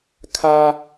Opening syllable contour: high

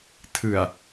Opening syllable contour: low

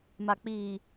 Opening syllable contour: low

